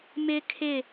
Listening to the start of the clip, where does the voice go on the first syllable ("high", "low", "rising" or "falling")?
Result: high